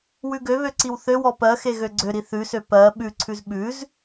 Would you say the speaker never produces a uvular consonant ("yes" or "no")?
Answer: yes